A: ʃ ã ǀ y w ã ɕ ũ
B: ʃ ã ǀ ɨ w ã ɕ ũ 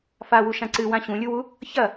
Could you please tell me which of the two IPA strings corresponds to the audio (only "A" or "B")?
B